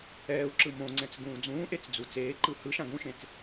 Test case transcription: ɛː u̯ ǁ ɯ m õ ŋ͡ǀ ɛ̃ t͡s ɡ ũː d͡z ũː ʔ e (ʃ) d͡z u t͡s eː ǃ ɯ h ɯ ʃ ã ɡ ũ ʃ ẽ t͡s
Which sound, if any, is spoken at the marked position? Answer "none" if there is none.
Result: t͡s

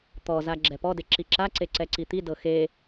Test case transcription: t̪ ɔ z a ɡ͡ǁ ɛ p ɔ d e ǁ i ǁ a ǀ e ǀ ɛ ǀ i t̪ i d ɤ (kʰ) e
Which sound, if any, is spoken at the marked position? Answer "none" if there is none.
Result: x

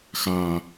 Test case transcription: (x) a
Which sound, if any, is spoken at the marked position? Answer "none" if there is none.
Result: x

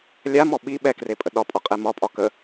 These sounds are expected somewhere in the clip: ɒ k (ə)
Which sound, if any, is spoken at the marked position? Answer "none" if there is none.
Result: ə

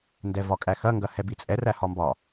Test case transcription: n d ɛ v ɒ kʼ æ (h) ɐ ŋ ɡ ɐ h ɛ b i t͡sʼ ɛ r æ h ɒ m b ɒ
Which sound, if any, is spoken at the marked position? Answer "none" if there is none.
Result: x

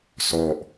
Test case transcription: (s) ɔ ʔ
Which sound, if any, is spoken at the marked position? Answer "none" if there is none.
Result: s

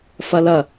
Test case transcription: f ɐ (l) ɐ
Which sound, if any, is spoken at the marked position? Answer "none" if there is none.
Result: l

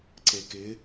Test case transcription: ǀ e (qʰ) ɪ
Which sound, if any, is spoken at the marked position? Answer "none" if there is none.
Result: k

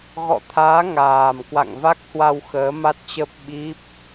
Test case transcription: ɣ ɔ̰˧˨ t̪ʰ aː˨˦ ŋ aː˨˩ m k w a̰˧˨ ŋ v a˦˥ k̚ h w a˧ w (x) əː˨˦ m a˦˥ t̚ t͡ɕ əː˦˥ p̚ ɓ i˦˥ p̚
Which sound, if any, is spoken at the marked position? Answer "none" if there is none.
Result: x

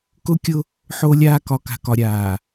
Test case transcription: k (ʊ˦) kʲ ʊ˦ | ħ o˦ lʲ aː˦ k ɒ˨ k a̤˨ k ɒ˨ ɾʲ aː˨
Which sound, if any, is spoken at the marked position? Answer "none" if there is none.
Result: ʊ˦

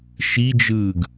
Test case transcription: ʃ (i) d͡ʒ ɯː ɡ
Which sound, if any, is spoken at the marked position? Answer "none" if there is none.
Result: i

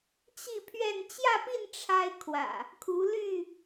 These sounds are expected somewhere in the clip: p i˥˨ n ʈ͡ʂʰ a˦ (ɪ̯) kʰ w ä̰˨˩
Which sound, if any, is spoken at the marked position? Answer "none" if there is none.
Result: ɪ̯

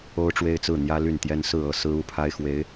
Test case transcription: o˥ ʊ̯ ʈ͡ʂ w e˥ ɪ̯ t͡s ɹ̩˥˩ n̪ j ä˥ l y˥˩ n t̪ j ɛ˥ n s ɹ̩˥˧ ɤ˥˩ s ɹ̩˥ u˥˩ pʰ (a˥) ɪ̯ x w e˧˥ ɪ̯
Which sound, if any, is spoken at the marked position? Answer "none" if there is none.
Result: a˥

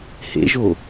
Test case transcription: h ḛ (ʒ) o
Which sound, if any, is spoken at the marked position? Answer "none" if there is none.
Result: ʒ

